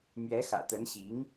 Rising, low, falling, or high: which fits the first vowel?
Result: rising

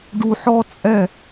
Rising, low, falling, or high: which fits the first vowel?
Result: low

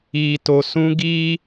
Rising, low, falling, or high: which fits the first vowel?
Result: low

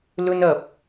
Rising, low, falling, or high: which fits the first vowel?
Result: high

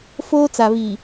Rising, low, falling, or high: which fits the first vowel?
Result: high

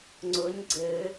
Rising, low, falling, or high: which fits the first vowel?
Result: rising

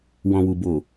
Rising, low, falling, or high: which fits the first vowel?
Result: low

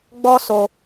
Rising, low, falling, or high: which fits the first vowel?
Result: high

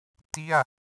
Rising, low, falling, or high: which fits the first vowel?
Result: falling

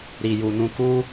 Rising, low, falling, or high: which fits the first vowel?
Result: low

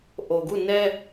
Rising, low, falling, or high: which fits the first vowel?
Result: low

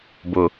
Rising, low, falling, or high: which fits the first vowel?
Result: low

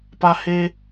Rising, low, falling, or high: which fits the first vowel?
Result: high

